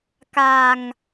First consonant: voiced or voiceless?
voiceless